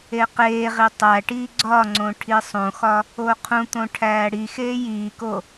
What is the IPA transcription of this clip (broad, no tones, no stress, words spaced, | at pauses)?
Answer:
eqeːʁi tˤæʈiː ɡ͡ǀɒŋ͡ǀõ ʈʰisˤõxɒ | oqʰũt̪õ ʈʰæːɽixeː jiːko